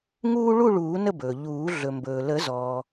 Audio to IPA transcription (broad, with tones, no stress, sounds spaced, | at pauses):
ŋ uː˦ ɭ u˥˨ ɭ uː˨˩˦ n ə˥˨ b ɵː˩ ʎ uː˨˩˦ ɮ ɵ˩ m b ɵː˩ l ə˨˩˦ z ɔː˩